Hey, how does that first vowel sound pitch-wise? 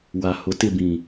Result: low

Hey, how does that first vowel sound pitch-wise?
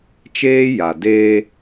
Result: high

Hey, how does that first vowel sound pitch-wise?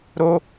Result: high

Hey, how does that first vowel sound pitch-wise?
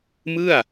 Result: falling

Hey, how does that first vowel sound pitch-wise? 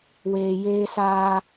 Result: low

